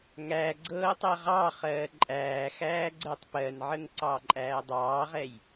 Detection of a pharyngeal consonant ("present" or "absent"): present